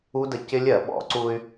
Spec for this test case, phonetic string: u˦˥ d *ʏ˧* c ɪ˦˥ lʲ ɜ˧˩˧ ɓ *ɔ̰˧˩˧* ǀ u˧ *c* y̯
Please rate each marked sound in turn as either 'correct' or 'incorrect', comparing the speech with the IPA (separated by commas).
incorrect, correct, incorrect